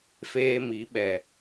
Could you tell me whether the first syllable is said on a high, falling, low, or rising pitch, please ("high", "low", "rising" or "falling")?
high